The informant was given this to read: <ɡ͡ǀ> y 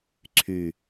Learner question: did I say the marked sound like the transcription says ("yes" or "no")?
no